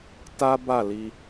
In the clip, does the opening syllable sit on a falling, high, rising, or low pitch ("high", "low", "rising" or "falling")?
high